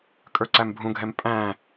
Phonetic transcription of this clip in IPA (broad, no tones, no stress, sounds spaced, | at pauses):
kʼ ə˞ ǀ æ m bʱ ũ ɡʱ ɛ m pʼ æ̃